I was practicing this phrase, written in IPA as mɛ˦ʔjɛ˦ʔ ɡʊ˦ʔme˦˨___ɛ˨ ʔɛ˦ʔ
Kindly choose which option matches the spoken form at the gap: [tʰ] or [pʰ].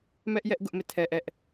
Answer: tʰ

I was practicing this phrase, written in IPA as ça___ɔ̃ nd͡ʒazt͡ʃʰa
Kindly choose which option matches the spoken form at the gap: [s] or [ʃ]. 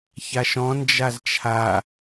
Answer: ʃ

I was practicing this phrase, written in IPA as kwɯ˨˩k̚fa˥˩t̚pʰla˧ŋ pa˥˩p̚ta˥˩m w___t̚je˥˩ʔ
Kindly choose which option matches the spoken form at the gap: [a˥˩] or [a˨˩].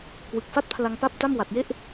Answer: a˨˩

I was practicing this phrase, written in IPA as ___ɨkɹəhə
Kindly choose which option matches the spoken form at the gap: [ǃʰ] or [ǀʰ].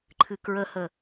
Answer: ǃʰ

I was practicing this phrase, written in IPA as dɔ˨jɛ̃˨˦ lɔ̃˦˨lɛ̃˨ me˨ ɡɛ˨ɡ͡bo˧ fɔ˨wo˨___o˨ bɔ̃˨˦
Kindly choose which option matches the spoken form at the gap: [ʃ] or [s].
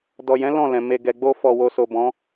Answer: s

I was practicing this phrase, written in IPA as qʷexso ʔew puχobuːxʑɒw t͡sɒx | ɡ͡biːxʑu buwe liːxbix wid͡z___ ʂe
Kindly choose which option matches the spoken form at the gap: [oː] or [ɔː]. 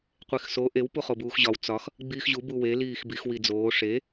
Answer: oː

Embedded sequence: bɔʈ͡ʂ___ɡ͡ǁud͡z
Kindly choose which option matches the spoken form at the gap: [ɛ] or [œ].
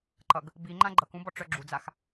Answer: œ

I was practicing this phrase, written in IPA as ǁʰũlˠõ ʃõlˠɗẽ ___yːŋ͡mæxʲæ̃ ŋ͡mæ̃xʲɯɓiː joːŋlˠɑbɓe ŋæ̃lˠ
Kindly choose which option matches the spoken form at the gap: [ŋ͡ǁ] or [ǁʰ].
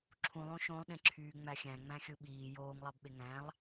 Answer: ǁʰ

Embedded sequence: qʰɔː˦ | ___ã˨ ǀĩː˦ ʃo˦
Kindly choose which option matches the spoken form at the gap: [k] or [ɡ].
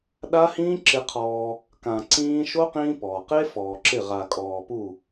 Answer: k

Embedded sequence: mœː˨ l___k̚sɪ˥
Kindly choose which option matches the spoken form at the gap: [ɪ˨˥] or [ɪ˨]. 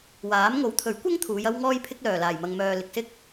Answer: ɪ˨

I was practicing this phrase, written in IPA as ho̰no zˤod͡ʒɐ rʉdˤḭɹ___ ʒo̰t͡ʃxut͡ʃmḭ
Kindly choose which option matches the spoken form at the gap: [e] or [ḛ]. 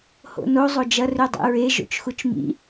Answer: e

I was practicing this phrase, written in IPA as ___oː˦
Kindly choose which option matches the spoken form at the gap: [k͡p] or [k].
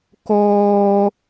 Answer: k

